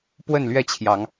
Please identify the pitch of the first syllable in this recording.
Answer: falling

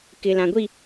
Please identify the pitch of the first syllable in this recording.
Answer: low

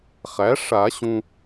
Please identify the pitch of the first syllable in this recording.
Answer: rising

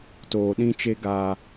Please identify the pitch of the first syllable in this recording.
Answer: low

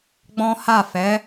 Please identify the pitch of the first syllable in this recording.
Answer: high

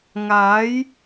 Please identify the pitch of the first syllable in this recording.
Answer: rising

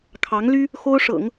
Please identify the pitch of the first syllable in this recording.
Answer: rising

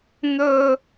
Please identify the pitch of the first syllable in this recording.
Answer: high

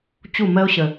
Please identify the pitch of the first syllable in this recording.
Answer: falling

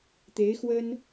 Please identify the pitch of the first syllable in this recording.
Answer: rising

